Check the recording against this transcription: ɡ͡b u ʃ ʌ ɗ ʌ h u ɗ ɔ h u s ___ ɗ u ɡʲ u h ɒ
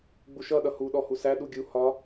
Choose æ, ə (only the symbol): æ